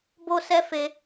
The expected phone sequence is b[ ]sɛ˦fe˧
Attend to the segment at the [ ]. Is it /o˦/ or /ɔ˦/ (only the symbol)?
o˦